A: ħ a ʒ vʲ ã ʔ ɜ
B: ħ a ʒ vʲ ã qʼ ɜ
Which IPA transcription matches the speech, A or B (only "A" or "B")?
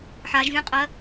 B